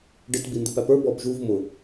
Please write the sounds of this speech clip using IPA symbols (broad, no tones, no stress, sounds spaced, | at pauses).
ɖ ɪ t b i n d ɪ p æ p ə˞ b ɔ b ʒ u v m ʊ